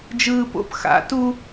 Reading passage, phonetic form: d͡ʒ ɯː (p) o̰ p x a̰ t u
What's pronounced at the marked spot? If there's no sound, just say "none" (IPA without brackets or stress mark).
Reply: p